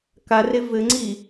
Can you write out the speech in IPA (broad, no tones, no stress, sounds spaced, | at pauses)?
k a r e v ɘ ŋ͡ǀ i